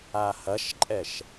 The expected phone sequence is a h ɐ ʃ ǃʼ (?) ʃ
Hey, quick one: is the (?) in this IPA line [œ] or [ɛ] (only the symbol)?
ɛ